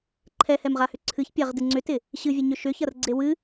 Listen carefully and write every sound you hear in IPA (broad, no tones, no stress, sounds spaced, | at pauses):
ǃʰ ɛ h ɛ m ʁ a h ʏ ǀʰ ɨ ç pʲ a ʁ d ɨ ŋ͡ǀ ʏ t ɪ | ɕ ɨ vʲ ə ɲ ʏ ʃ ʏ ç ɐ r ɡ͡ǀ e w ɨ